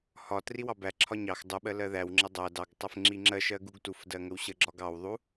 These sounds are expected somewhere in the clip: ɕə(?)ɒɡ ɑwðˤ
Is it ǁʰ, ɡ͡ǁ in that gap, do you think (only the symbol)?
ɡ͡ǁ